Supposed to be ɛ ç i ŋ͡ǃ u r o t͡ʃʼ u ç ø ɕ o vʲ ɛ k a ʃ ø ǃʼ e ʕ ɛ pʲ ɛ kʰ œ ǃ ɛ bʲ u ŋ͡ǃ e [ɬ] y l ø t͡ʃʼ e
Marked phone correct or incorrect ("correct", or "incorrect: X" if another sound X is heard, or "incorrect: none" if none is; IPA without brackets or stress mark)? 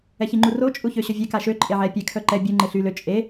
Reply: correct